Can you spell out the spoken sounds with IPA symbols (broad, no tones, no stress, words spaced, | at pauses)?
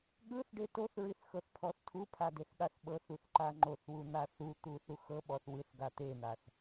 ɠɯθɖe toθɹiθxɤθpʰɔθ tʰupʰadeθɠaθ ɓɤθuθǃa ŋ͡ǃoθwun̪a θut̪uθu xɤɓɔθ wɯθɡa t̪en̪aθ